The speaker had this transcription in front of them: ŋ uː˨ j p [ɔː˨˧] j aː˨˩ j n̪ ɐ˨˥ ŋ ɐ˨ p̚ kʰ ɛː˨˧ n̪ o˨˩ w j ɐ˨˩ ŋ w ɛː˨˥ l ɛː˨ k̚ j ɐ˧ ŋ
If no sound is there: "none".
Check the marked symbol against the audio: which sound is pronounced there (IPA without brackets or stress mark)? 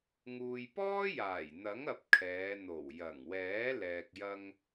ɔː˥